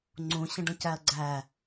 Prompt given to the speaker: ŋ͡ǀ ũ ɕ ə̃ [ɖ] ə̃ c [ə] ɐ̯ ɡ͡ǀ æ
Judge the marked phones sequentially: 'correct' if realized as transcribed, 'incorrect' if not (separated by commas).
correct, incorrect